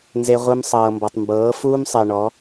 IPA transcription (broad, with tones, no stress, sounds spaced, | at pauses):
n z e˧ ʁʷ ɯ˧ m sˤ ɤː˨ m b ɔ˨ tˤ m b ɤː˨˦ f uː˦ m sˤ e˨ ɳ ɔ˨˦